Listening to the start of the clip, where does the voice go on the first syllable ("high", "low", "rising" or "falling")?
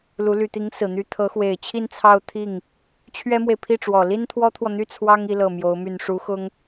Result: rising